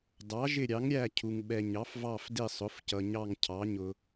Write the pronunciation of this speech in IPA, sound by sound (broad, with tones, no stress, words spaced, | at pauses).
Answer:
dɑ˩˥ʒɪ˦˨ɾʲɑ˩˥ŋɾʲæ˦˨ cʰu˨ŋ ɓɛ˨ɲɑ˩˥fvɑ˦˨fdɪ˦˨ sˤʊ˩˥fcʌ˨ɲɑ˦˨ŋ cʰɑ˩˥ɲʊ˨